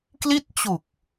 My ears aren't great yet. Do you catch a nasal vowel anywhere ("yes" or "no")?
no